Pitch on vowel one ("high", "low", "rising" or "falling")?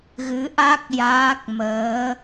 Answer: rising